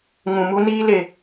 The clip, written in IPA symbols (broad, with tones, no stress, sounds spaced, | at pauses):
ŋ ũ˨ m u˧ n iː˦ l e˧